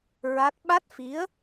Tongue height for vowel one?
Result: low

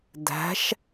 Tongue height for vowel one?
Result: low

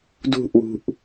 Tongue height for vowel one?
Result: high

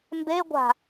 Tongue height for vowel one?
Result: mid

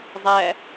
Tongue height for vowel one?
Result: low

